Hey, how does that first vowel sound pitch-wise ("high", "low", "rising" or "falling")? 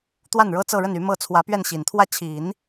falling